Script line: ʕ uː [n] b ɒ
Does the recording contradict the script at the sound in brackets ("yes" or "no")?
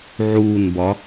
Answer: no